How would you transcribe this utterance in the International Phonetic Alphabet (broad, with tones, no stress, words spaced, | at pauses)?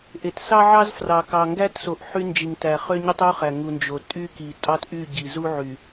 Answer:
ʔe˨t sɑ˦ʕɑ˦z frɑ˨kɑ˨ŋɡæ˦tso˨ʔ ħy˦nd͡ʒi˨ŋtæ˨ χø˦ɲy˦tˤu˦χæ˨ ŋu˨nd͡ʒo˨ tʼy˦ki˨tʼɑ˦t ʔy˦˨ɟi˨zu˦ ʕy˨